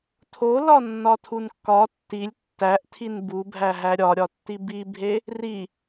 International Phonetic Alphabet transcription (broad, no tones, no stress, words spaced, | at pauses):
tʰolɒ nːɒtʰunkːɒ tːilʲ tːæʔtʰin bubʱæ ɦæɾʲɒɾʲɒtːi bibʱe | ri